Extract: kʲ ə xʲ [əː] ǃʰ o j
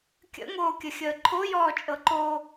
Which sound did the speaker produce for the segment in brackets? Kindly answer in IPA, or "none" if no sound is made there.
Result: əː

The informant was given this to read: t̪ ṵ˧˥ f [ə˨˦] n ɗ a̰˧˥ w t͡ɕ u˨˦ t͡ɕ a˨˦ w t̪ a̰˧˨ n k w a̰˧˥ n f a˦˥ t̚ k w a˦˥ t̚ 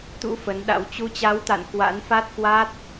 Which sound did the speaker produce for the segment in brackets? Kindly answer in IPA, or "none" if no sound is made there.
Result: ə˨˦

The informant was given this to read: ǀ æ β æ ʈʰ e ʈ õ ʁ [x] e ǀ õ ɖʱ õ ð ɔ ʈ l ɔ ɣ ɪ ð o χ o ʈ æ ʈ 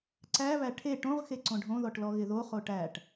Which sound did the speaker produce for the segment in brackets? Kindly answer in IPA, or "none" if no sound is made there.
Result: x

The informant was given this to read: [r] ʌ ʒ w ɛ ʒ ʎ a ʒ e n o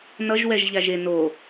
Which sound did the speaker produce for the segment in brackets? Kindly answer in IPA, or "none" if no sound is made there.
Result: n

